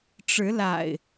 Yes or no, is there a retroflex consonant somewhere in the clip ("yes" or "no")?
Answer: yes